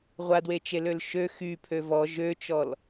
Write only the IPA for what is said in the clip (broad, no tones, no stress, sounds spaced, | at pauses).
ʁʷ a d w e t͡ʃ e l ø l ʃ ø x y pʰ ø v ɔ ʒ ø t͡ʃ ɔ l